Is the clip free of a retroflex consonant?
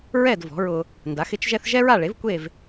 no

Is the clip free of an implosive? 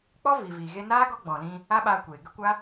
no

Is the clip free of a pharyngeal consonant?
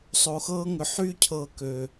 no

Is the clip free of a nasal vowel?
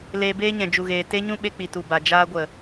no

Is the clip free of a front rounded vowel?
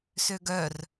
no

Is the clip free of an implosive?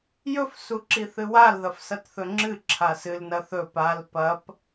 yes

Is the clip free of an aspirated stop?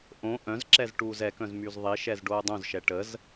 yes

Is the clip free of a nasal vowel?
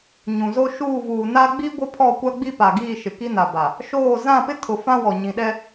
no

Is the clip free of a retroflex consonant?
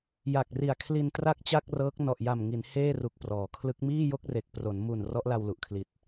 yes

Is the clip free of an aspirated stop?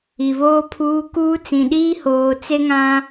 no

